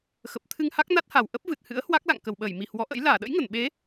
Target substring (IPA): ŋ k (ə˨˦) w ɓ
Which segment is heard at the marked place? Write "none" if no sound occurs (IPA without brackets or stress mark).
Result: ə˧˩